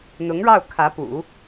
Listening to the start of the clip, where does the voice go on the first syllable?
rising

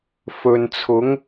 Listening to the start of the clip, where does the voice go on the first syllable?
low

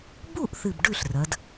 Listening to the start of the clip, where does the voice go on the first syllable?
falling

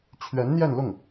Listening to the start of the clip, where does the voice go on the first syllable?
rising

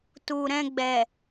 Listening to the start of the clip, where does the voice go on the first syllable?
low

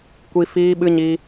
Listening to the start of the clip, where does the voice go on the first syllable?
high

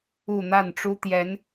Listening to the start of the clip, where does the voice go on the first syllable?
falling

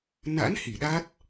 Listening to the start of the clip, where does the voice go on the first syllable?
rising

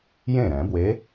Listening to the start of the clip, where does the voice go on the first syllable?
falling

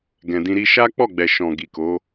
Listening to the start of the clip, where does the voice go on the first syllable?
low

